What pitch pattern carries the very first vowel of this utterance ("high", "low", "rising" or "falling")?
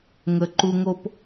low